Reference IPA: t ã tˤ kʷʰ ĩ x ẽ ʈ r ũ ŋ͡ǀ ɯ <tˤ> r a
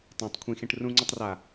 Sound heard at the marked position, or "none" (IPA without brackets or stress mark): tˤ